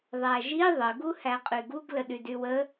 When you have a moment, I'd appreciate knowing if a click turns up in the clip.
no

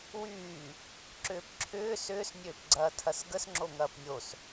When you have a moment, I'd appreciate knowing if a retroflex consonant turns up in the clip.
no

